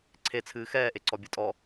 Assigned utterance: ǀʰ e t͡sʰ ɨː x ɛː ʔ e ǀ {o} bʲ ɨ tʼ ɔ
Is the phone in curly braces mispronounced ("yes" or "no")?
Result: yes